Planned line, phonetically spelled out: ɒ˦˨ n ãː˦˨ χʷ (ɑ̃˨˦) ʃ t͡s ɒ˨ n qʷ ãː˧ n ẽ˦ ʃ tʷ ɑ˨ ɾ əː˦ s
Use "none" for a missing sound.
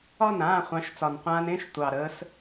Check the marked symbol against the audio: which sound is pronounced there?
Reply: ɑ̃˨˦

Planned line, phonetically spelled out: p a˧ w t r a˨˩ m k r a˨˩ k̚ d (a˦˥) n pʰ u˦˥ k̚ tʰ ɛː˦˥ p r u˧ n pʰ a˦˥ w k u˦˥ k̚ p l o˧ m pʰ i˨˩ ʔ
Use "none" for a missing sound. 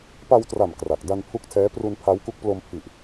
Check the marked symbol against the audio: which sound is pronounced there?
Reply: a˧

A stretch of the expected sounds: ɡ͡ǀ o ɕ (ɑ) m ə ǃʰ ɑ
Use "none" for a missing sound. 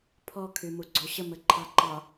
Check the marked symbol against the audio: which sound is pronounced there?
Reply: ə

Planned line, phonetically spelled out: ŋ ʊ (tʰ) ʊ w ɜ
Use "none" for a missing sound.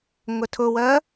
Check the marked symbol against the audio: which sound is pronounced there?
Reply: tʰ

